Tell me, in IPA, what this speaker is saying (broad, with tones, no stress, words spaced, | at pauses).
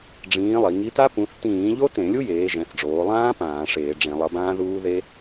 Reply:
ɖ͡ʐĩː˨˥lˠi˩˧ ŋi˨˥ta˦˥ pũ˨˥θ tĩː˧˩˧ʎo˦˥ tẽ˧˩˧lʲu˦˥jeː˩˧ ʒɛ̃˩˧θɖ͡ʐoː˩˧lˠãː˦˥ pãː˧˩˧ʂeː˧˩˧ɖ͡ʐẽ˧˩˧ lˠʌ˨˥bãː˦˥ðuː˦˥ ðe˦˥